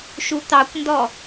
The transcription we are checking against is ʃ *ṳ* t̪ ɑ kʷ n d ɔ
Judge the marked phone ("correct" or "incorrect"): incorrect